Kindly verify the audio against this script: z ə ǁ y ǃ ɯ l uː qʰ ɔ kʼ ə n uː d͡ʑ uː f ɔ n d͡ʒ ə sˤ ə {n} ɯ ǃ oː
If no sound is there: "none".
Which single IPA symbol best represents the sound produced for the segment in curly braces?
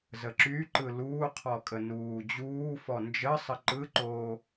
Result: ǃ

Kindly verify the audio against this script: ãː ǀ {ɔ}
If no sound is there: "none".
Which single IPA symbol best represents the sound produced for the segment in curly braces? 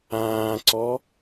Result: ɔ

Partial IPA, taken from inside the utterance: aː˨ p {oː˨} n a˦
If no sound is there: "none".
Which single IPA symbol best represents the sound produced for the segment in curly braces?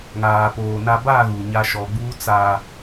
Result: oː˨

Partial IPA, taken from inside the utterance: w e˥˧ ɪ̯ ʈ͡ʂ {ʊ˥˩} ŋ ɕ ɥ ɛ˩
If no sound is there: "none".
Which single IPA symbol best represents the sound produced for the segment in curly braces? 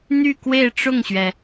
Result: ʊ˥˩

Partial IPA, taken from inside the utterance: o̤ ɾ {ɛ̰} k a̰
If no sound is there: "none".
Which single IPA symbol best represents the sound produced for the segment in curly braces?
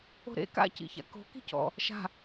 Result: ḛ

